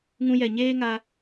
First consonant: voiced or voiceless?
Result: voiced